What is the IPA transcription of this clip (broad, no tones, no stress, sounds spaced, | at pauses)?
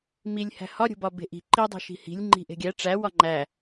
m i lʲ h æ̤ h ɒ ɾʲ o̤ b ɒ b e̤ ʔ i̤ ǃ i dˤ o̤ ʃ i̤ h i̤ lʲ ŋ͡ǃ i̤ ʔ e̤ ɡʲ æ ʈ͡ʂ æ w ɒ ŋ͡ǃ æ